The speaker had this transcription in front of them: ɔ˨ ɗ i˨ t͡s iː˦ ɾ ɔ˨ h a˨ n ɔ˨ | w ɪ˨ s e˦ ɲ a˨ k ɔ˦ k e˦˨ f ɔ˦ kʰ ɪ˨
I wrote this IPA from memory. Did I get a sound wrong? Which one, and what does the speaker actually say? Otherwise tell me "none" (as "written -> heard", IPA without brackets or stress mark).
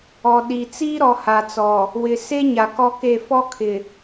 n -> t͡s